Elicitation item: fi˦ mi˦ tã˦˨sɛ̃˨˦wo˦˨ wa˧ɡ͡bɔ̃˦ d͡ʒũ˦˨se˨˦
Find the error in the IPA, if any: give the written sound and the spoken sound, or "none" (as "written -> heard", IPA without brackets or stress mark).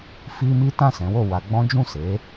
none